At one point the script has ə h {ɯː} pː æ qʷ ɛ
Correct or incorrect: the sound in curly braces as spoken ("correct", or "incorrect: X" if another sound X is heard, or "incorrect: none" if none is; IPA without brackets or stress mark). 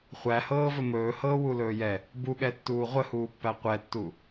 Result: incorrect: uː